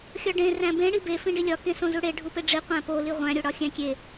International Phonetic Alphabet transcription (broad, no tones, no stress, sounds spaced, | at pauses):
xʲ ɒ ɖ ẽ r æ̃ b ẽ ɽ i b e f ĩ ɖ i lʲ ɒ k ẽ s õ z u ɽ e ɖʱ u p e ɖ͡ʐ i qʷ æ̃ p o l i ʁʷ æ̃ ɾʲ o ɽ ɒ xʲ æ̃ kʲ e